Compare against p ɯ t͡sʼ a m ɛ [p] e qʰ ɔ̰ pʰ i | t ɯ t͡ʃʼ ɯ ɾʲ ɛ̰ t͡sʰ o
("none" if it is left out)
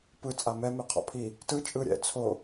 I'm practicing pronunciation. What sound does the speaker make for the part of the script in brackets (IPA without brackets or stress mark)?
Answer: m